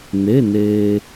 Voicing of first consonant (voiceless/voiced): voiced